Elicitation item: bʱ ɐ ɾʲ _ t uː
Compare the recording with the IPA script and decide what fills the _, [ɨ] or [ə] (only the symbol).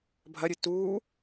ɨ